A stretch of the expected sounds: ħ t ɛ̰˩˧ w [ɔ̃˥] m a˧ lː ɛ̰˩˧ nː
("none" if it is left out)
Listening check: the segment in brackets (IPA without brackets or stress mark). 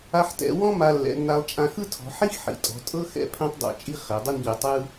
ɔ̃˥